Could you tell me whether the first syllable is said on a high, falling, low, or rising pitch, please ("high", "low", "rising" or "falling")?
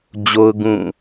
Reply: high